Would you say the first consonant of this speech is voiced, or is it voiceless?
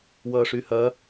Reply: voiced